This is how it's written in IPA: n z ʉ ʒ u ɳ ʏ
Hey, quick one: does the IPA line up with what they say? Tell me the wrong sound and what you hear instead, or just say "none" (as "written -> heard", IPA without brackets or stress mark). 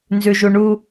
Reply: ʏ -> u